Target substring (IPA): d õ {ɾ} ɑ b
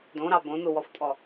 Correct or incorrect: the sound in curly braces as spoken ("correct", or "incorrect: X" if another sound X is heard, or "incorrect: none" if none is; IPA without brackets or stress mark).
correct